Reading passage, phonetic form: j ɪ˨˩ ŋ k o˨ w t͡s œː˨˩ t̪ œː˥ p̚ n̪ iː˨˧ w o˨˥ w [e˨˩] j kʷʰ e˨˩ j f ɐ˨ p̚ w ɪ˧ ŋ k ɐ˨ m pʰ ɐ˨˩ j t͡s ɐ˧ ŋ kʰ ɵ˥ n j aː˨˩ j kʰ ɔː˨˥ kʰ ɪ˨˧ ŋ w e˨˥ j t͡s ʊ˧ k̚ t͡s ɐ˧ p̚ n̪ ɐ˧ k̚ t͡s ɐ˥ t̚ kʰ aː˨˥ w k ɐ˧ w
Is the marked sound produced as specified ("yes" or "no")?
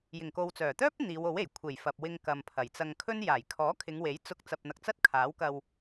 yes